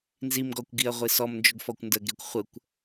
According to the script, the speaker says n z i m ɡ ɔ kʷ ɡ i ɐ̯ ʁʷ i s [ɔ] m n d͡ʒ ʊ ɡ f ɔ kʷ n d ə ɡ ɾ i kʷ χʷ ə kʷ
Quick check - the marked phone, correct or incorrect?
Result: correct